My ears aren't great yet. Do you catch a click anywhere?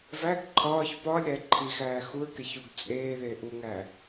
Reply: yes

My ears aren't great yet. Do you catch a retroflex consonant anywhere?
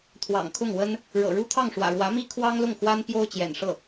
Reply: yes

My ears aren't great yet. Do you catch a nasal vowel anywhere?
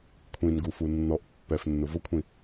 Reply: yes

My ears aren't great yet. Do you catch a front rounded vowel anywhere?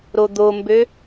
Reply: yes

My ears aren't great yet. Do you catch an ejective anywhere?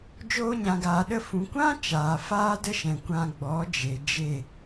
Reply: no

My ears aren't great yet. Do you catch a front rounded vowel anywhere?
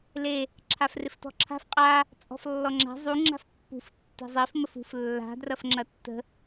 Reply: no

